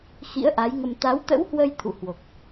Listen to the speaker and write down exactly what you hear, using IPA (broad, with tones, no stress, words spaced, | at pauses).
xḭ˧˥ə̯ʔa˨˦jŋə˧m t̪a˨˦wt̪ə̰˧˥whwə˧j t̪ʰṵ˧˨hwo˨˩k̚